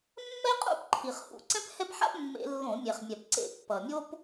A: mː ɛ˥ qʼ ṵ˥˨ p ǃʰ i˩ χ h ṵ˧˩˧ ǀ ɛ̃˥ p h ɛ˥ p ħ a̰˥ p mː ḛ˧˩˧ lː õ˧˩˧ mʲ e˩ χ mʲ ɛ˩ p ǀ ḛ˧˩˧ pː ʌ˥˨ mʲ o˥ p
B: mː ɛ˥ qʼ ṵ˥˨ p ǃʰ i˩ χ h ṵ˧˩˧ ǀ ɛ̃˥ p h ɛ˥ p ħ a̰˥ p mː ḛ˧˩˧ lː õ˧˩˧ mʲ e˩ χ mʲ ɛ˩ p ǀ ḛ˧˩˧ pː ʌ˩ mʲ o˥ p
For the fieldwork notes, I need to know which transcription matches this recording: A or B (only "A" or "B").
B